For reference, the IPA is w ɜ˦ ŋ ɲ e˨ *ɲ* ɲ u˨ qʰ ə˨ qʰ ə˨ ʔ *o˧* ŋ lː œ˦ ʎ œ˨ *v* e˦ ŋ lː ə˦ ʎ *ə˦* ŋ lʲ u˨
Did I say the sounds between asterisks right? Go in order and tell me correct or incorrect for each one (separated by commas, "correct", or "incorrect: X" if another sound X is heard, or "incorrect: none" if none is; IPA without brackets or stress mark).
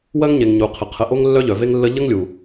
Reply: incorrect: ŋ, correct, correct, correct